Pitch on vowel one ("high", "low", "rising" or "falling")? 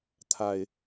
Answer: low